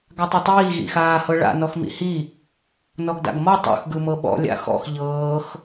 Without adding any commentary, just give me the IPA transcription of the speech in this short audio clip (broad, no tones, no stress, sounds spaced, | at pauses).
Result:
ɡ a tˤ ɤ tˤ iː ɣ ḭ x aː h ɤ ɭ a̰ n ɔ x m ḭ h i | n ɔ ɡ d a̰ ɡ m ɔ tˤ o̰ x ɡ ɯ m ɤ ɓ ɔ̰ lʲ a̰ x ɔ̰ x ʎ ɤː x